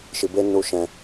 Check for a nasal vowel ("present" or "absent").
present